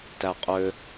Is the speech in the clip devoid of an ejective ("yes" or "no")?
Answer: no